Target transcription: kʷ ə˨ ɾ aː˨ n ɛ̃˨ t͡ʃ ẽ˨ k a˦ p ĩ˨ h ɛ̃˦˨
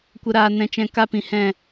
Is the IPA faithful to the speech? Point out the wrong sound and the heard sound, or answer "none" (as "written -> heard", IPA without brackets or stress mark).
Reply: ẽ˨ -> ɛ̃˨